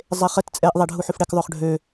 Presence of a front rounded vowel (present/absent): present